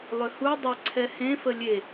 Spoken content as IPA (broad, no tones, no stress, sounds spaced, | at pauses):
lˠ ʏ h u dˤ ʏ ǀʰ ɛ h ẽ f ə lʲ e